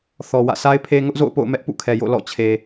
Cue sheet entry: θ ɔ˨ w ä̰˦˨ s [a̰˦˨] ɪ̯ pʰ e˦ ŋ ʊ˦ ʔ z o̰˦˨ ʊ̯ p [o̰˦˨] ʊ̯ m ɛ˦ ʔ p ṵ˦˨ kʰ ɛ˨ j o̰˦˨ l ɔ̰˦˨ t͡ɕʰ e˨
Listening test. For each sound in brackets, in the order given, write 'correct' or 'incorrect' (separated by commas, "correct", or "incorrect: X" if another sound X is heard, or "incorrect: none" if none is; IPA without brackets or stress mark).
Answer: incorrect: a˦, correct